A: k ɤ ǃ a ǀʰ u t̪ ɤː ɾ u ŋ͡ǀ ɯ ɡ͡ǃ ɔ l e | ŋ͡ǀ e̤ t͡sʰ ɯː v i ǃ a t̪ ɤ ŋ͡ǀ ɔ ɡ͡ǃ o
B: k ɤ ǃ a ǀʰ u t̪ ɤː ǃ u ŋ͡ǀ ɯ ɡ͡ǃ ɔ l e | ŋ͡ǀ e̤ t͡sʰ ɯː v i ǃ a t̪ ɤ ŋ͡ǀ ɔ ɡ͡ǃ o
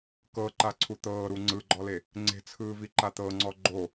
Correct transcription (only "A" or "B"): A